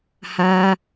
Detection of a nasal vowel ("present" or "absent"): absent